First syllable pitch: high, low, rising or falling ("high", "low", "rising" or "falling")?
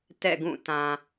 falling